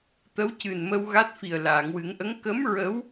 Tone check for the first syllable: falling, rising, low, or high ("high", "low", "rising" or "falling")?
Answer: rising